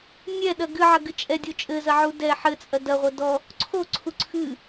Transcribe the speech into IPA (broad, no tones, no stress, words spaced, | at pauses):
nʲɛɗɐ ɡɨʕɐɡɨ t͡ʃʼɛdʲo t͡ʃʼɘzɐʕu dɛ ħɘt͡sʼɐ dɐʁʷɐ dɔ | ǀʰoǀʰu ǀʰɨ